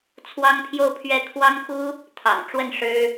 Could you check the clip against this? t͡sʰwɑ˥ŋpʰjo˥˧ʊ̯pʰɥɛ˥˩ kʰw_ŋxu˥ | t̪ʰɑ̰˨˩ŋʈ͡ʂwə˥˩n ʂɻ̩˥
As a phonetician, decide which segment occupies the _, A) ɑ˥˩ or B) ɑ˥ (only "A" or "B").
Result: B